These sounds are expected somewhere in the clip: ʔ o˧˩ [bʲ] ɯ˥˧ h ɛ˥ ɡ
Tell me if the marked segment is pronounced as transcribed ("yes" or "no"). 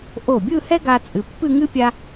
yes